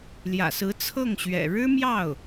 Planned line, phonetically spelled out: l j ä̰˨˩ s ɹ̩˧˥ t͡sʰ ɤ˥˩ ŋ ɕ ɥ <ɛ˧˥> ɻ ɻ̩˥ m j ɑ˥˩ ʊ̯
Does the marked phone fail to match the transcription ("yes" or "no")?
yes